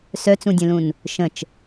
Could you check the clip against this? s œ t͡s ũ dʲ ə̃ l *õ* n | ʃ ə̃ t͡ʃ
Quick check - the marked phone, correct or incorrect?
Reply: incorrect